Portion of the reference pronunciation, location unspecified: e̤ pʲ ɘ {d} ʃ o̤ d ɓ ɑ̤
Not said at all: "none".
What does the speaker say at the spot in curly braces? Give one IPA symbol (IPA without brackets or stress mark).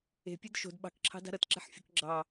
d